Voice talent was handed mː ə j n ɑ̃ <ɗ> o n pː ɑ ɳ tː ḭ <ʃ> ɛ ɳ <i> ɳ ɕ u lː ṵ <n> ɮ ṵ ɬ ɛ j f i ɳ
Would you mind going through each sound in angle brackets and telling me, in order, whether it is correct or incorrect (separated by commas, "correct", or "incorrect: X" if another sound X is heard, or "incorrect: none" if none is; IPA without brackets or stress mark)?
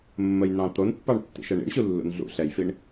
incorrect: t̪, correct, incorrect: ḭ, correct